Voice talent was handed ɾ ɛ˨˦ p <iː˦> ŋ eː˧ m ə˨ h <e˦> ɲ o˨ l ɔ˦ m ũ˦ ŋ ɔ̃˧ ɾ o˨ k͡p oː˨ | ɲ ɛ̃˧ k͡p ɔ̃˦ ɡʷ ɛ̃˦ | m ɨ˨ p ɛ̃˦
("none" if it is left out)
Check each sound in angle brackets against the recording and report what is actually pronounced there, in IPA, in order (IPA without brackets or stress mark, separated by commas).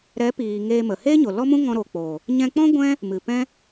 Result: iː˨, e˦